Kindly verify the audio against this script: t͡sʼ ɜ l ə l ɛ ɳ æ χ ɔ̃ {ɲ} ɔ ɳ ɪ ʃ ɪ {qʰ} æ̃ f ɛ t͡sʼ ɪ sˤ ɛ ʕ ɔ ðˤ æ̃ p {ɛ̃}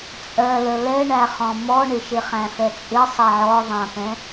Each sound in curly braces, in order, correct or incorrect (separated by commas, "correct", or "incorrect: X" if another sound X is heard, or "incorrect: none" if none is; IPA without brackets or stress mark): incorrect: m, incorrect: χ, correct